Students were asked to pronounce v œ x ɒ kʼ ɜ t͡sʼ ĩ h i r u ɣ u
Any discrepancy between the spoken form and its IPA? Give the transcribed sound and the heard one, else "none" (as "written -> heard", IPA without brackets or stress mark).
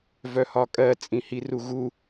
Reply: x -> h